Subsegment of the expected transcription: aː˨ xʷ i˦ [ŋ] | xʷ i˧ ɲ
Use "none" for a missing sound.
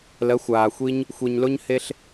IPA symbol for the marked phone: ɲ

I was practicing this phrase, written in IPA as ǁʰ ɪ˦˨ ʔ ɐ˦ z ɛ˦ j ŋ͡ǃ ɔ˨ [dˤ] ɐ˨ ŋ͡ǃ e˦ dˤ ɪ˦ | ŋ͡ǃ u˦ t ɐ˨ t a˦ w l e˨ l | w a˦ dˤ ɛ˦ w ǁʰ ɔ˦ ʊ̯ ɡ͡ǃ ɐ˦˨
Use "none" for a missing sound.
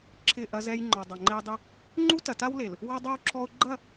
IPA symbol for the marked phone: dˤ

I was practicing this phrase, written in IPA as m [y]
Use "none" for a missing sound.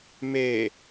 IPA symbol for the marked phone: e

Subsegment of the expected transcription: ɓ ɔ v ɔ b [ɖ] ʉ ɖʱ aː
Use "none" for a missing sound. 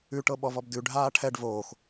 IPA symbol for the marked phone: d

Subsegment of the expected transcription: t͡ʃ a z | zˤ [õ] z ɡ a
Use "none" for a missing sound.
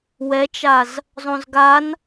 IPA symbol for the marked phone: õ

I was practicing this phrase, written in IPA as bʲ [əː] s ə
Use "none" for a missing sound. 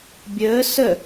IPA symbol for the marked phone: əː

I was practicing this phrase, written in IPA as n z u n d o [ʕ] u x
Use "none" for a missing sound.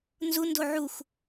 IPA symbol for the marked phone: ʕ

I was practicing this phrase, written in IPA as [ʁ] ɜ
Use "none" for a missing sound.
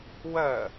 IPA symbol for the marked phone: w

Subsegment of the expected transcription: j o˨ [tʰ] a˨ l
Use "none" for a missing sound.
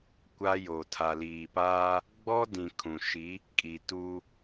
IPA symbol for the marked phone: tʰ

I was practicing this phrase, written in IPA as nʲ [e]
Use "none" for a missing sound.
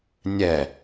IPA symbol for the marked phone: ɛ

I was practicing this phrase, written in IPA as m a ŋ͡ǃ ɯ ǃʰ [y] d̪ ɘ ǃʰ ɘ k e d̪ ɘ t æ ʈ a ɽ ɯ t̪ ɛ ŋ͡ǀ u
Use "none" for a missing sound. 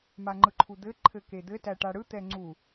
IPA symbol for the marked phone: u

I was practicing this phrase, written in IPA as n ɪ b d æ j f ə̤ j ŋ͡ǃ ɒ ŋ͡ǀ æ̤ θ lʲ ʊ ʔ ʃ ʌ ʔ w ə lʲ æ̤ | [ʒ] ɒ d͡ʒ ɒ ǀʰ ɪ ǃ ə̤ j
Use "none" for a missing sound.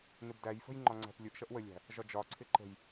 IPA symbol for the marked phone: ʒ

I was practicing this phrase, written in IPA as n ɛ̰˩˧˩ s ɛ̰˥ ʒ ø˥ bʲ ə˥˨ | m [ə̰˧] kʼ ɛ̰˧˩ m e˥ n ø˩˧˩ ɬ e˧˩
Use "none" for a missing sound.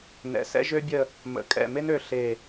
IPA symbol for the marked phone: ə̰˩˧˩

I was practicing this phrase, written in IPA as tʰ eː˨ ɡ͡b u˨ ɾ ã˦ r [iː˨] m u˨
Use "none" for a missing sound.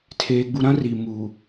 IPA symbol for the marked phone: i˨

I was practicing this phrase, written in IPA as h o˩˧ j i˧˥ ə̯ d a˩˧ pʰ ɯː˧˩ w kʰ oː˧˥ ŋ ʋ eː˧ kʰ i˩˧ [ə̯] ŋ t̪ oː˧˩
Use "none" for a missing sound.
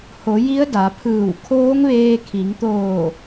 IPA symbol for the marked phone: none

